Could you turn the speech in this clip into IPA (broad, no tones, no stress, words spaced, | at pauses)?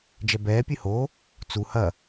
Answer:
d͡ʒɛbɛː pʲɨho | t͡su hɐ